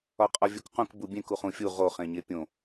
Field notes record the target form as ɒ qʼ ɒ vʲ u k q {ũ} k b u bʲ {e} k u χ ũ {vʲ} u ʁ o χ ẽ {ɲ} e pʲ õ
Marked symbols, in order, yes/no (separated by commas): yes, no, no, yes